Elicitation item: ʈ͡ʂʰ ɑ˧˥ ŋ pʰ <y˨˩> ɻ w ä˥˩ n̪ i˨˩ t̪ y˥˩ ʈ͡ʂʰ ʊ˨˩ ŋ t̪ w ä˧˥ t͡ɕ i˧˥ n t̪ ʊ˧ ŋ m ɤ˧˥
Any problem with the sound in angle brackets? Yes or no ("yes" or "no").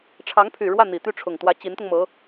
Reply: no